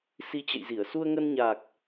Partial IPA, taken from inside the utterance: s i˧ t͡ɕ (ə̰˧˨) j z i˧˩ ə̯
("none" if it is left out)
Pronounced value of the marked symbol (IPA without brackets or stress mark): ə̰˧˨